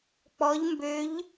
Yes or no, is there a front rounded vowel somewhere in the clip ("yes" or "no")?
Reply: yes